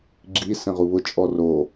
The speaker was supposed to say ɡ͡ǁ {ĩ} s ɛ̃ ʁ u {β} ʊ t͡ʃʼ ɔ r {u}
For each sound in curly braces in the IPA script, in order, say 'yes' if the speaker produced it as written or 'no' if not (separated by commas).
no, yes, no